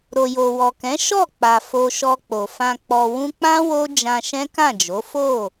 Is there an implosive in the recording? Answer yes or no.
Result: no